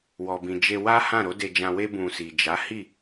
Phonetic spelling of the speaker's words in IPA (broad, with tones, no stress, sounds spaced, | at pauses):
w ɔ˨ b ĩ˨ d͡ʒ e˧ w a˦ h ã˦˨ ɾ o˨˦ d e˧ d͡ʒ ã˧ w e˦ b ũ˧ s i˨ d͡ʒ a˨˦ h i˦˨